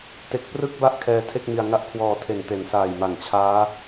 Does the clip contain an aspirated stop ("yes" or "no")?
yes